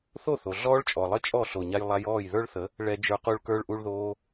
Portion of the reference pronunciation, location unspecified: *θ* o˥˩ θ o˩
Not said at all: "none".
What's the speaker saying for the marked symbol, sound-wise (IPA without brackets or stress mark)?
θ